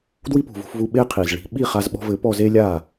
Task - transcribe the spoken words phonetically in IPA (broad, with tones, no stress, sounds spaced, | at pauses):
d w i˥ p ṳ˩ v ṳ˧ f v u˧ ɓ e˥ qʰ i˩ z ɭ i̤˧ ɓ i˥˩ χ a˧ z ɓ ɔ̤˧ v ɘ˩˥ p ɔ˧ z e˥ lʲ a˥˩